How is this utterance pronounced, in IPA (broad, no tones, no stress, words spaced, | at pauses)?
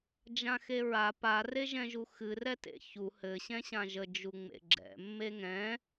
d͡ʒãxeɹa pa reʒɛ̃ʒuxɨ rɛtḛçu hɘ ɕɛ̃ɕãʒə d͡ʒuŋ͡mḛɡ͡ǁɛ̰ mːeŋɛ̃